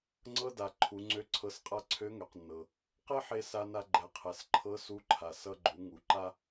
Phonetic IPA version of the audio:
ŋ͡ǀ ɤ˧ d a˩ ǃʰ u˩˧ ŋ͡ǀ ø˧˥ ǀʰ ɤ˧˥ s qʼ a˥ ǀʰ ø˧˥ ŋ ø˩ q nː ɤ˩ | q e˥ ħ e˧ s a˧ n a˧ ɡ͡ǃ ɛ˩˧ qʰ ɛ˩ s ǃʰ ɤ˧˥ s u˧˥ ǃʰ a˩ s ʌ˧ ɡ͡ǃ u˩˧ ŋ u˩˧ ǃ a˥

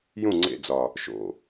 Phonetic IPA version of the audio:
j ũ ŋ͡ǀ ḛ d͡z ɒ | ʃ o̰

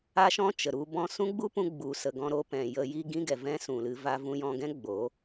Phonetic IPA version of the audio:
a˦ ʃ ɔ̃˦ t͡ʃ ə˨ ɾ u˦ b ɔ̃˧ s ũ˦ ɡ͡b u˦ p ũ˧ ɡ͡b u˨ s ə˨ ɡ ɔ̃˧ ɾ o˧ p ɛ̃˨ j ə˧ j i˦ ɡ ĩ˦ ɡ ɛ˨ v ɛ̃˦ s ũ˨ l ɨ˧ v a˧ v ũ˧ j ɔ̃˧ ɡ ɛ̃˦ ɡ͡b o˨˦

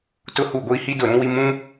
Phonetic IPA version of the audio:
t ʊ˦ h u˦˨ ɡʷ i˦ h i˦ d ʊ˦˨ ɾ ũ˦ w i˦ m ũ˦

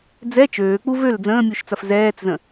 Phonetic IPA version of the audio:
d͡z ɛ t͡ʃ øː k͡p u v ø l d͡z ə̃ː mʲ u ʃ t͡s ɐ f z ɛː t͡s z ə̃

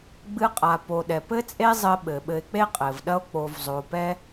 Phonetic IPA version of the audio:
ɡ͡b ɨ˧ qʼ a˨ p o˨ ɗ ɛ˨ p ɘ˦ t͡sʼ e˦ zˤ ɘ˧ ɓ ɘ˨ ɓ ɘ˧ e̯ k͡p e˦ qʼ ɘ˨ v ɗ ɐ˦ o̯ k͡p o˧ v zˤ o˧ p ɛ˦

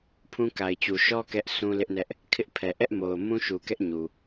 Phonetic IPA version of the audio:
pʰ ũ˦ k a˨ ɪ̯ t͡ɕ u˨ ʃ ɔ˦ k ɛ˦ ʔ sʰ ũ˦ l ɪ˦ ʔ n ɛ˦ ʔ | kʰ ɪ˦ ʔ pʰ ɛ˨ ʔ ɛ˦ ʔ m o˨ ʊ̯ m ũ˦ ʃ u˨ k ɛ˦ ʔ ɲ u˨

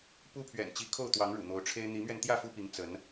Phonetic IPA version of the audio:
p u˦ pʰ ɥ ɛ̰˨˩ n t͡ɕ i˨˦ kʰ o˥˨ ʊ̯ t̪ w ɑ˨˦ ŋ ɻ ṵ˨˩ n̪ o˨˦ ʊ̯ ʈ͡ʂʰ e˦ ɪ̯ n̪ i˨˦ m ɥ ɛ˧ n t̪ j ä˥˨ f u˦ p i˨˦ ŋ t͡s ə˨˦ n

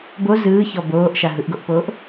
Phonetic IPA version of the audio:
b o z ɯː ç ɔ b oː ʔ ʃ a ɦ ɯ ʔ ɡ o ʔ p oː ʔ

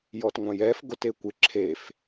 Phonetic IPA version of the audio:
j ɔ t ŋʷ ã j ɛ f ɡ o t e kʷ ɪ ǁʰ e f

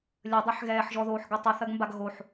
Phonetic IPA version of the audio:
lʲ ə dˤ ə ħ ɣ ɛː ħ ʒ ɔ ð oː ħ ɡ ə tˤ ə θ ɐ ɡ m b a ɡ ɣ o ħ

